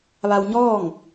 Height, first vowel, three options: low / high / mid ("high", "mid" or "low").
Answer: low